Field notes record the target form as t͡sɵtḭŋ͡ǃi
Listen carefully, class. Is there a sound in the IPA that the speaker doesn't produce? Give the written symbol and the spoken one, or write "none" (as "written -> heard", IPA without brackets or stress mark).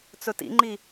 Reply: none